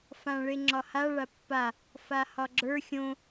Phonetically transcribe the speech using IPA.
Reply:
f ã ɭ e ŋ͡ǁ ɒ h a ɭ a pː a | f a h ɒ ɡ͡ǁ ə˞ xʲ õ

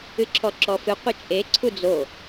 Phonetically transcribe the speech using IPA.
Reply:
ɨ ǁʰ ɔ ǁ ɔ f ɨ qʷ ɘ t͡ʃʼ e ǀʰ u d͡z o

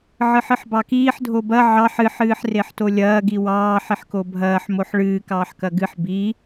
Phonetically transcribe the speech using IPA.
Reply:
ʕ ɨ ħ ɨ ħ b ɑ k iː ħ dʱ o b ɐ ʕ ɑ ħ ɨ ħ ɨː ħ r e ħ t o lʲ ɐː ɡ i w ɑː ħ i ħ k o bʱ ɐː ħ m o ħ ɭ ɨː k ɑː ħ k ɐ ɡ ɨ ħ b i

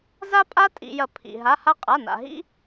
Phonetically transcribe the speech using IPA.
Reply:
z a˥ pʼ a˥ tʼ ḭ˧ j ɐ˧ pʰ ḭ˧ ɦ a˧˥˧ h a˥ qʼ a˧˥˧ n a̰˧ ɦ ḭ˥

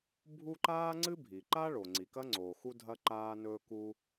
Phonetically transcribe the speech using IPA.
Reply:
bʱ u˥ ǃ aː˥ ŋ͡ǀ ɨ˥ bʱ i˩ ǃ a˥ ɭ o˩ ŋ͡ǀ i˩ k ɐ˥ ŋ͡ǀ oː˩ x u˥ dʱ ɐ˥ ǃ aː˥ n ɵː˥ k u˥

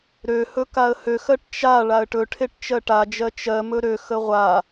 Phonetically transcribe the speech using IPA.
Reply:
ɾ ø h ɵ k a ə̯ h ø x ɜ ʈ t͡ʃ a ɭ a ə̯ ʈ ɵ ʈʰ e ʈ t͡ʃ ɜ ʈ a d͡ʒ ɜ t͡ʃ ɜ m ɵ ɾ ø x ə ʁʷ a

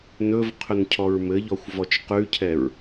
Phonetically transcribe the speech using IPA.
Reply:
n ɵ v qʰ ɵ n cʰ ɔ ɹ m ɘ ʎ ɔ xʷ v ɔ t͡ʃ q ʉ cʰ ɛ ɹ

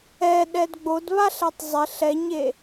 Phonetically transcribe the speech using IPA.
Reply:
ɛ ɗ ɛ d ɡ͡b o d β a ɬ ɛ tˤ zˤ ɪ ɬ ɛ ɲ e

